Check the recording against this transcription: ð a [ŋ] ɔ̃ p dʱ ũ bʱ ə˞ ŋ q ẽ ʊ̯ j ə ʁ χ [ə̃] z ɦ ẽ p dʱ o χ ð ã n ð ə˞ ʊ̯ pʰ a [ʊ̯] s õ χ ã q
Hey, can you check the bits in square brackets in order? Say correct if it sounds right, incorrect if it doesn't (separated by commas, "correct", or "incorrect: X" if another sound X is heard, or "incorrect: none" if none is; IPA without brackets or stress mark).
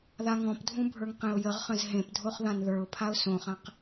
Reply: correct, correct, correct